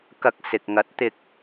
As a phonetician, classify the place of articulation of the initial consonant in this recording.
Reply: velar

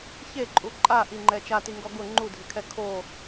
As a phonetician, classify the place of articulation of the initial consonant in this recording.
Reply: palatal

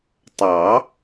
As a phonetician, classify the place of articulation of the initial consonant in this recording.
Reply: alveolar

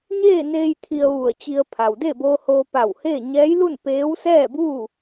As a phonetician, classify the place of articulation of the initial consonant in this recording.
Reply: palatal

